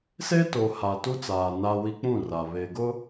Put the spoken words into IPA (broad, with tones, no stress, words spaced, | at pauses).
seː˦to˨ ha˨tu˦t͡saː˨ na˦wi˦ k͡pũ˦˨ra˨ βe˨ ɡʊ˦